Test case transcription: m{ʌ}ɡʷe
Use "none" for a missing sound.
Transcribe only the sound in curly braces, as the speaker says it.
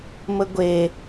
ə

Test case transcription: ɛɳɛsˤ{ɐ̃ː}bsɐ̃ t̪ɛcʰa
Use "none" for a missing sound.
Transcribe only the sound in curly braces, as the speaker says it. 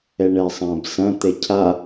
ɐ̃ː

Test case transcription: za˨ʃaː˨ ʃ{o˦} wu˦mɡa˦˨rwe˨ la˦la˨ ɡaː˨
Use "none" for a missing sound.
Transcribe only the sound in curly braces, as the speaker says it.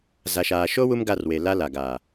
o˦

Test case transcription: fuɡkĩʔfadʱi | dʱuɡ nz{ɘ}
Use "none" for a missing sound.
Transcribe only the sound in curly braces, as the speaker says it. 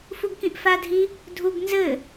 ɘ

